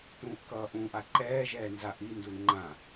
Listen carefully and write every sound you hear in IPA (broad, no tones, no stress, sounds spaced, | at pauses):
t ũː ʔ k ʌː ʔ ũ ʔ a ǃ ɛː ʒ ɛː n z a ʔ i n d u ŋ͡ǃ ã